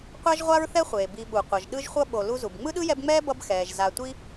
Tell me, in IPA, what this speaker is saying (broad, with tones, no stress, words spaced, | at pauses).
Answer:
qʷa˥ʒʁʷa˥ɹθɛ˥χʷeː˩ bi˨ɓu˩qʷʌ˩ʒ ɗɯ˦ʒχʷʌ˦ ɓo˨ lu˦zu˩b ŋ͡mɯ˥ɗɯ˥jɛ˦bŋ͡mɛː˥ bʌ˦bxɛː˩ʒ za˨tʷi˦